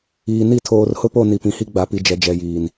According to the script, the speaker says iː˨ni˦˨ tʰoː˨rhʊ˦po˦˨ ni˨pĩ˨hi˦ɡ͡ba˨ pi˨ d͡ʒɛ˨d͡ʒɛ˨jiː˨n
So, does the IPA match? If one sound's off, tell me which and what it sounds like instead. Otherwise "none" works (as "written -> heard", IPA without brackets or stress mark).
none